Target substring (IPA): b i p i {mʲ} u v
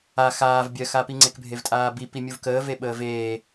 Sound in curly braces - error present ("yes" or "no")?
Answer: no